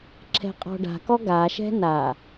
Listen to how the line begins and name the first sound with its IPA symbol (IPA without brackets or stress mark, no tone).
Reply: ǁʰ